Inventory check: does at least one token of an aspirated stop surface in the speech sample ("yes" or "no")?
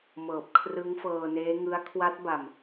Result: yes